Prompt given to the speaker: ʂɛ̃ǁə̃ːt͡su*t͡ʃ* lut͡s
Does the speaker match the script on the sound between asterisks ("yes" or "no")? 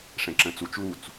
yes